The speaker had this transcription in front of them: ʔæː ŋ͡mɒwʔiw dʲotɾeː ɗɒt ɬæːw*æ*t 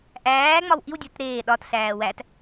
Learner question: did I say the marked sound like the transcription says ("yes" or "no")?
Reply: yes